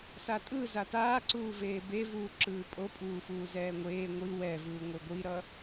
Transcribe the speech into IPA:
satʼɯ zataːǀuːveː bevuː ǁɯːpʼopʼuːfuː zɛːŋʷeː ŋʷi wɛvɯː ŋʷeɡʷiɾʌ

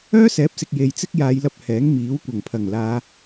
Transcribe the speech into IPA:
œː˥sɛː˨˥p̚sɪ˨k̚ je˨jt͡sɪ˥k̚jaː˨˧jlɐ˧p̚ hɛː˨˥ŋmiː˨˥w kʷɐ˨˩ŋpʰɐ˨˩ŋ laː˨˧

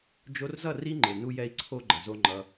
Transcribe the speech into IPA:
d͡ʒo˧rzʌ˦˨ ri˦ŋ͡ǃe˨ nu˦jɛ˦i̯ ǀʰo˦ɡ͡ǃʌ˨zo˦ ŋ͡ǃʌ˧

